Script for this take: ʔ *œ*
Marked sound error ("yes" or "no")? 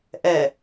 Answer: yes